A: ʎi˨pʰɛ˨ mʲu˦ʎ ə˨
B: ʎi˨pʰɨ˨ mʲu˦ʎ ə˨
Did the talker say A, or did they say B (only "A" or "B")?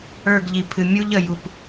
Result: B